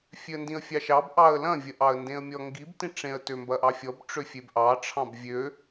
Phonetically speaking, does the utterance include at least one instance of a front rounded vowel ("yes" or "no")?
yes